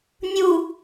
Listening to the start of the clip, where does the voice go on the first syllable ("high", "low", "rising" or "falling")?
low